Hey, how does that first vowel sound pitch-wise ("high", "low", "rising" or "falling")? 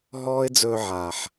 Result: high